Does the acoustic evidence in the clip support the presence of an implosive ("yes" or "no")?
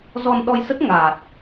yes